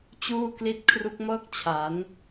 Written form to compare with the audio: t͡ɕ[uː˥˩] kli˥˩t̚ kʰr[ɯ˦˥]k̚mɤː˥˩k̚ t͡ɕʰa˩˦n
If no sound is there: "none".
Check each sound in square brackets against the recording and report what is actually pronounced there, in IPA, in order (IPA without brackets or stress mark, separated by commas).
uː˥˩, u˦˥